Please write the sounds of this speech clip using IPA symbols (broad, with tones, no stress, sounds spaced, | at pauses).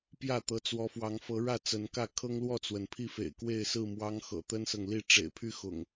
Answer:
p j ä˥˨ t̪ ɤ˨˦ t͡s w ɔ˨˦ f w ɑ˨˦ ŋ f ɤ˨˦ ɻ ä˥˨ t͡s ə˨˦ n k ä˥˨ kʰ ɤ˦ ŋ l w ɔ˥˨ t͡s w ə˩ n pʰ i˥˨ f ḛ˨˩ ɪ̯ k w e˥˨ ɪ̯ s ɹ̩˥˨ m w ɑ˦ ŋ x ɤ̰˨˩ t̪ ə˦ n s ɤ˨ ŋ l i˥˨ ʈ͡ʂ ḛ˨˩ ɪ̯ pʰ y˦ x ʊ̰˨˩ ŋ